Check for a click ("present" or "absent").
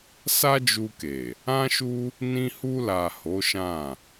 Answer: absent